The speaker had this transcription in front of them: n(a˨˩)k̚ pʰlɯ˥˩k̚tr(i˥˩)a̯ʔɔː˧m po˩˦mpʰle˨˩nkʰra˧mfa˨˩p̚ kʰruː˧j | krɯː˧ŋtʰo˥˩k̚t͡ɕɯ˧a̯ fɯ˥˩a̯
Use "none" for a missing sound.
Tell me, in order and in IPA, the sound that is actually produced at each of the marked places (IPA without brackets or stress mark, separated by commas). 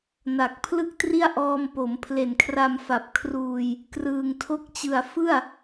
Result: a˨˩, i˥˩